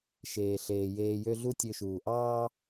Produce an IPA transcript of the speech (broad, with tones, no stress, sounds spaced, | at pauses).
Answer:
ʃ eː˩ ɬ eː˩ j eː˧ j ø˥ ɮ u˥ tʲ ø˧ ʃ uː˩ ʔ ɑː˥